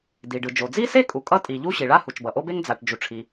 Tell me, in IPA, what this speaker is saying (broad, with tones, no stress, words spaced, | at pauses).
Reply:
di˩ɖɯ˩d͡ʒo˩ d͡zi˥se˥kʼu˩ kʼʌ˥tʼi˩ʎu˥ ɕi˩ɭa˥ hu˩t͡ʃbʌ˩ʔo˥be˥ŋ d͡za˩ʈ d͡ʒu˩ʈ͡ʂʰi˩